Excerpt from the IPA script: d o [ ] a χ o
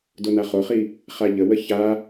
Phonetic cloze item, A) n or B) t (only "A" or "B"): A